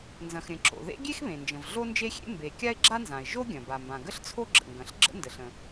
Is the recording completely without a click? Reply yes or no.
no